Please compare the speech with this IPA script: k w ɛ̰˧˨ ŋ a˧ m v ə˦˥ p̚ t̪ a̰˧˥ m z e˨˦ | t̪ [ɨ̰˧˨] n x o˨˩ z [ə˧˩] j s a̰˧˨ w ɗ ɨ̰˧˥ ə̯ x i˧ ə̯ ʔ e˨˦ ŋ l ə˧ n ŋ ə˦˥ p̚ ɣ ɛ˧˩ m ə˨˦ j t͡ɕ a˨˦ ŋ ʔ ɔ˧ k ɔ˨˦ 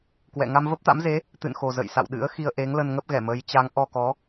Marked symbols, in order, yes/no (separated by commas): yes, no